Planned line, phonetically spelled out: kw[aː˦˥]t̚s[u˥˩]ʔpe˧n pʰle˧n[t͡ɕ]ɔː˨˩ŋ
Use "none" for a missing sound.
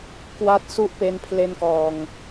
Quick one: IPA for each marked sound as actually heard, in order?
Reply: a˦˥, u˥˩, k

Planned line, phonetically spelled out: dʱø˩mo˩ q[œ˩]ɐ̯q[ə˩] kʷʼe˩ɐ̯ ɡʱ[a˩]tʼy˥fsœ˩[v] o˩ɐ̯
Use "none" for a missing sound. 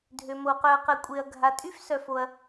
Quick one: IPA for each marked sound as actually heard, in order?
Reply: œ˩, ə˩, a˩, f

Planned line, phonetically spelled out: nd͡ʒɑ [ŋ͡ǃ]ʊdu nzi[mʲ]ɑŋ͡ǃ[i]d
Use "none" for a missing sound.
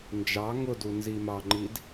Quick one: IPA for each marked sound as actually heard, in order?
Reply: ŋ, m, i

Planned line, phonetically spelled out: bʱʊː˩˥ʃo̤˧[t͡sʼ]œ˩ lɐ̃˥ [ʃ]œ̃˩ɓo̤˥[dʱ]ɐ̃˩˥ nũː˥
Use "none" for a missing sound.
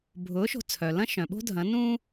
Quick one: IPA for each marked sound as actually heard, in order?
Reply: t͡sʰ, ʃ, dʱ

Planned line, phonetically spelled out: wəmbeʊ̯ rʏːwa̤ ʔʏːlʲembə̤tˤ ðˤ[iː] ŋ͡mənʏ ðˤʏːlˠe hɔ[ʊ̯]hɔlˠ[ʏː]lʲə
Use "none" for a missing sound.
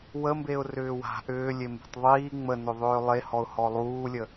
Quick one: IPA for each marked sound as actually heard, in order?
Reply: iː, ʊ̯, uː

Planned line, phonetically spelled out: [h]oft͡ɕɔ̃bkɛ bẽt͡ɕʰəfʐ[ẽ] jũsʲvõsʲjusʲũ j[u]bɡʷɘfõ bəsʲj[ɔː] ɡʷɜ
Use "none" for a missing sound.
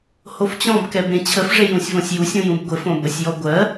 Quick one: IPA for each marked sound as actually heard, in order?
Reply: h, e, ũ, ɔ

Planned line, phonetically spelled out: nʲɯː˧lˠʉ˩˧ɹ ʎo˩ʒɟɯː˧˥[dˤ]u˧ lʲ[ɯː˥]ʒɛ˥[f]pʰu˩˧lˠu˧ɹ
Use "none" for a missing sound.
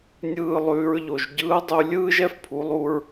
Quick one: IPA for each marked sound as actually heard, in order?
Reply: dˤ, ɯː˥, f

